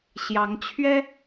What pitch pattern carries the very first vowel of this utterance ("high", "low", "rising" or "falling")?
rising